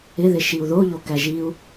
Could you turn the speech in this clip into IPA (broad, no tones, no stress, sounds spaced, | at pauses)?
ɪ ð ɪ ʃ i u̯ ð o ʎ o k æ ʒ i u̯